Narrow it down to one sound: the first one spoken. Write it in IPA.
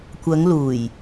kʷ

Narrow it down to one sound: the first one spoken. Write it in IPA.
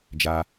d͡ʒ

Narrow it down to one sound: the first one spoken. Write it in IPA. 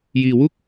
j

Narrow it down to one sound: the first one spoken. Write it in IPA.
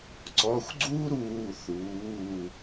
ǀ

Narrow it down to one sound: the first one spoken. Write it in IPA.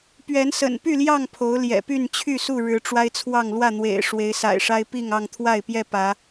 p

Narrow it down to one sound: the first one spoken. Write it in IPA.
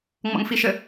ŋ͡m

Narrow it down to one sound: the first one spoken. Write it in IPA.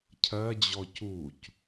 cʰ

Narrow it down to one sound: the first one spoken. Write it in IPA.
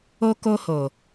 o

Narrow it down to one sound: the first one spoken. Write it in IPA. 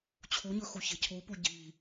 t͡ɕʰ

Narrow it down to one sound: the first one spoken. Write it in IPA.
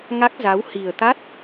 ŋ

